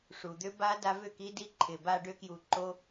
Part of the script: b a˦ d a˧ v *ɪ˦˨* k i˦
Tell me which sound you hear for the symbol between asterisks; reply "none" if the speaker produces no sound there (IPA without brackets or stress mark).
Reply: ʏ˦˨